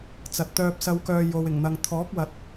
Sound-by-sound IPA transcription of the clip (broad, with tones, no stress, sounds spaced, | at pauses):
t͡s ɐ˨ t̚ t̪ œː˧ p̚ s ɐ˧ w k œː˧ j o˨ w ɪ˨˩ ŋ n̪ ɐ˨ ŋ t̪ʰ ɔː˨˥ k̚ w ɐ˨ t̚